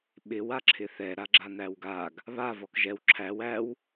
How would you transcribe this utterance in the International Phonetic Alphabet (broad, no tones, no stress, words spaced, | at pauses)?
ɓɪw aǁʰɪθɛ ɾaɡ͡ǁan̪æwɡaɡ | βa vɔkʒɛw ǁʰæw æw